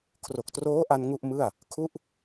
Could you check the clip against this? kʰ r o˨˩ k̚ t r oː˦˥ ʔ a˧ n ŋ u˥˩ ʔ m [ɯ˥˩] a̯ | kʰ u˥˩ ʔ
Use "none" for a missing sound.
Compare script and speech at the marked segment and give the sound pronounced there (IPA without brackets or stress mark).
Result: ɯ˥˩